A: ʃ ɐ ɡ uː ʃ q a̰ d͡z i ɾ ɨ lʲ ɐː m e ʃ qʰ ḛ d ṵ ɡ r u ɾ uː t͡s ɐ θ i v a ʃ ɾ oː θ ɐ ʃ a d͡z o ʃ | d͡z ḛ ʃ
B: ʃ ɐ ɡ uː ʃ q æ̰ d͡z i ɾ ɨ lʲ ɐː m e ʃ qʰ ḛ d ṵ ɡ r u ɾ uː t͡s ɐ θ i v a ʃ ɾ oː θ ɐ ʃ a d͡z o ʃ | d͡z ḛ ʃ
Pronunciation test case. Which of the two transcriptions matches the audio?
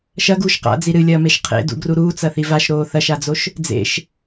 A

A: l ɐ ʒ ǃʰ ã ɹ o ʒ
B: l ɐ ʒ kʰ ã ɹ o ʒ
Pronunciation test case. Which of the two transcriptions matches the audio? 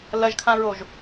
B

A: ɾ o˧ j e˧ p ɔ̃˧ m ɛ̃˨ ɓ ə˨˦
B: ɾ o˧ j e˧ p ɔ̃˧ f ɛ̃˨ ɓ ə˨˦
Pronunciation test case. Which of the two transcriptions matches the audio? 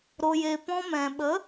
A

